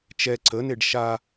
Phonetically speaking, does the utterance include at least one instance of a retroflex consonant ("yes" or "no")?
yes